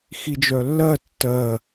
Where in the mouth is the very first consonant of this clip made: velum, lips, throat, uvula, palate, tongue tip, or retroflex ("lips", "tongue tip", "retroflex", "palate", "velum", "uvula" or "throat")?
velum